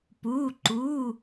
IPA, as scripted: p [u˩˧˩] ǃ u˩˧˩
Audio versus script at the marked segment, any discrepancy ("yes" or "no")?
no